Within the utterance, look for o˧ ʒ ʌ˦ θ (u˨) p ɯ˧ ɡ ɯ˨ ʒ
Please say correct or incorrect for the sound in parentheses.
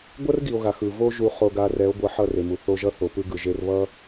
incorrect